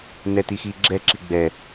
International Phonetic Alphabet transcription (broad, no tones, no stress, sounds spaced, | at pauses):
n ɛ t i x i ɡ͡ǁ ɛ ǁ i ɡ͡b ɛ